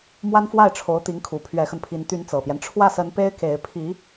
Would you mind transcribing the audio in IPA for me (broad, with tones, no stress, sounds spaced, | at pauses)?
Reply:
m w a˥ n f w a˥˩ ɪ̯ ʈ͡ʂʰ o˧˥ ʊ̯ t̪ i˧˥ ŋ kʰ u˨˩ pʰ ɥ ɛ˧˥ x ə˧ n pʰ i˧˥ n t̪ y˧˥ n t͡s ɤ˨˩ p j ɛ˦ n ʈ͡ʂʰ w ä˥˩ s ə˧˥ n p e˥ ɪ̯ k e˧˥ ɪ̯ pʰ i˧˥